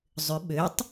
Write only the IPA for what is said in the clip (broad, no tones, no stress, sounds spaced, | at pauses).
zˤ ʏ ɓ ø tˤ